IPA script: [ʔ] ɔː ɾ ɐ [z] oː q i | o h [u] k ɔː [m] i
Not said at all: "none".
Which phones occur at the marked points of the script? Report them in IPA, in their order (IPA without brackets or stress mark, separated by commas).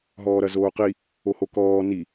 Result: ɦ, z, o, n